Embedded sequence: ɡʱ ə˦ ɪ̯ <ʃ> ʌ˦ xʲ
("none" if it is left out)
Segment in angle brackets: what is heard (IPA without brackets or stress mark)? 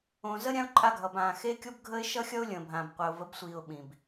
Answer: ʃ